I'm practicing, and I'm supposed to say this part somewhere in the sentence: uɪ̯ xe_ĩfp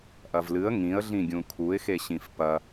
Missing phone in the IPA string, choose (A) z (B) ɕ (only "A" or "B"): B